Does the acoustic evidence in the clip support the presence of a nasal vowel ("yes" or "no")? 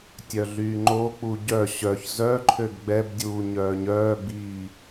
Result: no